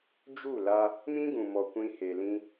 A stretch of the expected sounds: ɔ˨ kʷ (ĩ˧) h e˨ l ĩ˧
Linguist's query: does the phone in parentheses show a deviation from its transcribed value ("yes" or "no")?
no